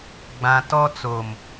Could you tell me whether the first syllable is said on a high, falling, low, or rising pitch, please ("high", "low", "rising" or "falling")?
low